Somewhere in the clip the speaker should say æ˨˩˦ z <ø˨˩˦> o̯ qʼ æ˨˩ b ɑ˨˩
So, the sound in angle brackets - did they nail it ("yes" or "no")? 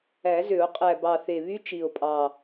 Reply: yes